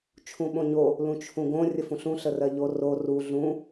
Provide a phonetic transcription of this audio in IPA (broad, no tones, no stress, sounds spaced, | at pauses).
t͡ʃʰ ũ ɓ õ ɲ o | l ũ t͡ʃʰ ũ ɡ õ rʲ ə f ũ ɬ ũ ɬ ə r ɜ ʎ o r o r u ɮ ũ